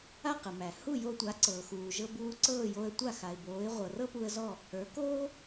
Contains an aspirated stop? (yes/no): no